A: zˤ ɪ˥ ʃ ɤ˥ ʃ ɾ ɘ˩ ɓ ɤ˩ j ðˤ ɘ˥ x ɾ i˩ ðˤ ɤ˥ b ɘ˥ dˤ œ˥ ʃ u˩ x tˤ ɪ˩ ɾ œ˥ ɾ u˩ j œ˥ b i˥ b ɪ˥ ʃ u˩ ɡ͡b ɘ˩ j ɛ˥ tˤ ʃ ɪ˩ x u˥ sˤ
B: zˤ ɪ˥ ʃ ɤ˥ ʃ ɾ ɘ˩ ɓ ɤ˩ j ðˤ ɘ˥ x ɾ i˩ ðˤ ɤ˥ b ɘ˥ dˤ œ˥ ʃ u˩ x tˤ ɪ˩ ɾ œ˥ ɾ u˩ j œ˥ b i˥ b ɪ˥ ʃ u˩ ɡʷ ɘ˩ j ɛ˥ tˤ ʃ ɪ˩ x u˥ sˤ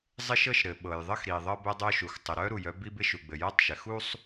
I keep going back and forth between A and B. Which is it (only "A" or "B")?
A